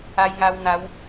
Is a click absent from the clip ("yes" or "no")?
yes